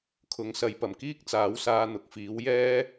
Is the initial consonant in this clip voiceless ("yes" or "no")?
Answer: yes